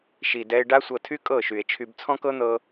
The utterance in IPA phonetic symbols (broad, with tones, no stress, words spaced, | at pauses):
ʃi˨dɛ˧e̯ ɖa˦sʷɤ˧tʰy˦ kʼɤ˦˨ʃy˨e̯t͡ʃʰy˧b t͡sʰɔ̃˦kɤ˦n̪ɤ˧